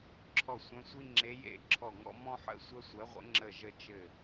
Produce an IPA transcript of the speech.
ǁʰ ɔ˦˨ sʷ œ̃˧˥ sʷ i˥ ŋ͡ǁ e˧˥ j ḛ˦˨ ǁʰ ɔ˦˨ ŋ ɔ̰˥ m ɔ̃˥ ħ ə̰˥ sʷ ɜ˥ sʷ ɜ˧˥ ʁʷ ə̰˧˥ ŋ͡ǁ ə˦˨ ʒ ə˦˨ t͡ʃ ɘ˦˨

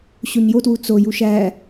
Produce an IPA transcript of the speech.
ɕ o ɲ j o t w u t͡s o j u ʃ æ

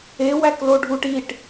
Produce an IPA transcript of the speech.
e w æ k l o ɖʱ u ʈ i ʈ

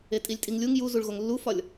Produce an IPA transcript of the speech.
e tʼ i lʲ tʼ i ŋ lʲ u ŋ j u z u ɭ ɣ o ŋ lː u f ɒ lʲ

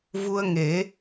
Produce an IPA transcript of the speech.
v u˧ ə̯ ŋ e˨˩˦

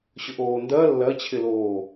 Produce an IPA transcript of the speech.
ɕ ʊ ʔ oː n d ɐ lː ɐ t͡ɕʰ ɪ l oː

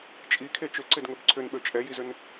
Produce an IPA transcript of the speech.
t͡ʃʼ i kʰ e t͡ʃ ʏ ǀ ɪ d ŋ ɵ b ǀʰ ʏ n ɓ ø t͡ʃʼ ɛ j i z ʏ n

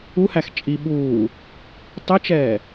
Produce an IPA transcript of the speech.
u h æ x t͡ʃʼ i ɓ uː | tˤ ɘ t͡ʃ ɛː

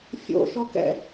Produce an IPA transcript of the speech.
fʲ o̰ ʃ ɔ k ɛ̰

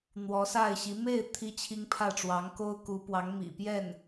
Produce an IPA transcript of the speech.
n̪ w ɔ˧˥ s a˥˩ ɪ̯ ɕ i˧˥ m e˥˩ ɪ̯ t̪ʰ i˥ t͡ɕʰ i˥ ŋ pʰ ä˥˩ ʈ͡ʂ w ɑ˧˥ ŋ k o˥ ʊ̯ k u˧˥ p w ɑ˧˥ ŋ m ḭ˨˩ p j ɛ˥˩ n

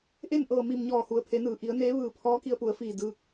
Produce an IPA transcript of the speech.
ʔ e˥˨ n ʔ ɤː˧˩ m i˧˩ m ɲ ɔː˧˩ h u˩ ə̯ pʰ e˩˧ n ɯː˩ ʔ i˩˧ ə̯ n eː˧˥ ʋ ɯː˧˩ pʰ ɔː˧˥ k i˧ ə̯ p u˩˧ ə̯ f iː˧˩ d ɯː˧ k̚

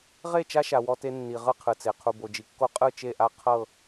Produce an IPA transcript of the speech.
ʁ e˦˨ t͡ʃ a˦ ʃ a˨ w ɔ˦ t e˦ nː i˨ ʁ ɯ˦ qʰ ɯ˨ t͡s e˨ qʰ u˨ b o˨ d͡ʒ i˨ kː o˦ qʼ ɯ˦˨ t͡ʃ e˦˨ ʔ a˦ qʰ ɤ˦˨

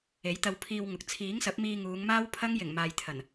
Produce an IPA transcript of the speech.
e˨˥ j t̪ ɐ˧ w pʰ iː˧ w ŋ ʊ˨ k̚ t͡sʰ iː˨˥ ŋ s ɐ˨˥ p̚ m iː˧ ŋ uː˨˧ ŋ m aː˥ w pʰ ɐ˥ ŋ j ɪ˨˩ ŋ m aː˨ j t̪ʰ ɐ˨˩ n

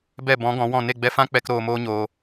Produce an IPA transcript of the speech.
b ɛ˦˨ b ɔ̃˨˦ ɡ ɔ̃˨˦ w ɔ̃˦˨ n e˦˨ ɡ͡b ɛ˧ f ã˦ k͡p ɛ˧ k ɾ oː˧ m oː˦ ɲ oː˧

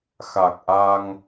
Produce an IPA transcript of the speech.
x a˨˩ k̚ ʔ a˧ ŋ

